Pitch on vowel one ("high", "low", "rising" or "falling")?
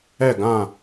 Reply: falling